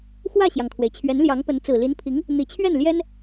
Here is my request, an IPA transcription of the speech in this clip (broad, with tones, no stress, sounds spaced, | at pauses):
x w ä˥˩ ɕ j ɑ˩ ŋ kʰ w e˩ ɪ̯ t͡ɕʰ ɥ ɛ˧˥ n l j ɑ˧˥ ŋ p ə˧˥ n t͡s ɹ̩˨˩ l i˧˥ n pʰ i˧˥ ŋ | n̪ i˨˩ t͡ɕʰ ɥ ɛ˥˩ n l j ɛ˥ n